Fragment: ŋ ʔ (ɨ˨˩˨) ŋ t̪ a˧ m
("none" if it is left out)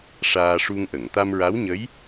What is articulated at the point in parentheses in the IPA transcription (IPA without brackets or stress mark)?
ə˨˩˨